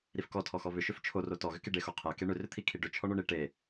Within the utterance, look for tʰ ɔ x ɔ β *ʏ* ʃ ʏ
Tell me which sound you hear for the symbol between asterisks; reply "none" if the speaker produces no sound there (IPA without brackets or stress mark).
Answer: ʏ